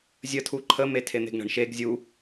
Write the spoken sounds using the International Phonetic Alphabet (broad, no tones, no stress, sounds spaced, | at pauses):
zʲ ə tʰ u ǃʰ ə m e tʰ e n̪ e̤ ɡ ɳ ə̤ ɳ ʃ e ɡ zʲ u